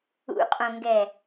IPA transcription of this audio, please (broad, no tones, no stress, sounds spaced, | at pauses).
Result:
ṵ qʼ õ ŋ ɡ ɛ